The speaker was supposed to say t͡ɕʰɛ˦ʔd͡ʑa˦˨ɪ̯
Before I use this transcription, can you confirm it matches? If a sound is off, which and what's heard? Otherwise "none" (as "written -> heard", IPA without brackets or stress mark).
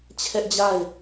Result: none